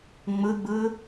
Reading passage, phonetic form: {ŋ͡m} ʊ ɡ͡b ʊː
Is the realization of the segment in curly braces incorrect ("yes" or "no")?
no